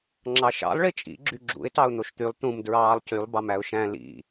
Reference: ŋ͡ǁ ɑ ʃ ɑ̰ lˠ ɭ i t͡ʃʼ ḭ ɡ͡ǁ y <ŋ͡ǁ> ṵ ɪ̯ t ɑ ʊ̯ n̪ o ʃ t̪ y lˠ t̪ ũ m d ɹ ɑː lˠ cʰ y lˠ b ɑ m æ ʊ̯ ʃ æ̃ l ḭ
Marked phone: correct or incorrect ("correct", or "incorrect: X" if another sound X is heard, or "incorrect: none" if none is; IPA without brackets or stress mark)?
incorrect: ɡ͡ǁ